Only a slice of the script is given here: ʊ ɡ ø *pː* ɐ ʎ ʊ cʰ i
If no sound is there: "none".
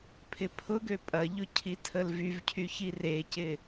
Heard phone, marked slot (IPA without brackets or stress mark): pʼ